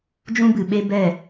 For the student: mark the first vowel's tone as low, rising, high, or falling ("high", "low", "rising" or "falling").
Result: high